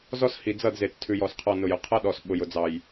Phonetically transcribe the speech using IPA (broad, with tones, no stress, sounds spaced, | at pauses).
z ɔ˦ s h i˨ d͡z ʌ˦˨ d z e˨ t͡s tʰ ʉ˨ j ɔ˨ s qʰ ɔ˨ n ʊ˨ j ʊ˨ qʰ ʌ˦ ɗ ɔ˨ s ɓ ʊ˨ j ʊ˨ d͡z ɑ˨ j